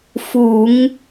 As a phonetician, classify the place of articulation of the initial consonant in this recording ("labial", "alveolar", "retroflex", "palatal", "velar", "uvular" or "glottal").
labial